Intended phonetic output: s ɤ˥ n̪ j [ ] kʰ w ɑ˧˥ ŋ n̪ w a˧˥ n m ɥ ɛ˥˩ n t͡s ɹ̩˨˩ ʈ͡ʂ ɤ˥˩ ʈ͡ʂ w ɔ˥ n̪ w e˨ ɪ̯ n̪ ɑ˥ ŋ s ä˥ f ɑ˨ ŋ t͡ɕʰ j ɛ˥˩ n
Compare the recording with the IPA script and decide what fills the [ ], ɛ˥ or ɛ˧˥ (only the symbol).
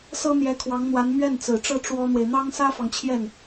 ɛ˧˥